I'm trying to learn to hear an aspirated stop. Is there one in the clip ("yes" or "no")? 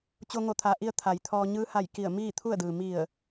yes